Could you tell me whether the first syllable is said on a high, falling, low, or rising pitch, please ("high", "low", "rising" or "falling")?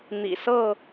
low